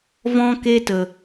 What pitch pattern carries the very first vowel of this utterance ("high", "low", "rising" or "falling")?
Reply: high